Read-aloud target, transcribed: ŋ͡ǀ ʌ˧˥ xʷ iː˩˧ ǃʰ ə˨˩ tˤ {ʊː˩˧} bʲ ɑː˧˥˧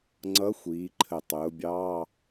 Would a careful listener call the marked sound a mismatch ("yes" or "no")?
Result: no